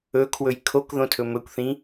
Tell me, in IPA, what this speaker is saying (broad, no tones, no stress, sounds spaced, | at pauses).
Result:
ɵ kʰ w ɵ j kʰ o k ð õ tʰ ɵ m ɵ kʷ θ ĩ